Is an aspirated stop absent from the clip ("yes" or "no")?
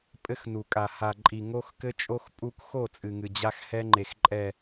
yes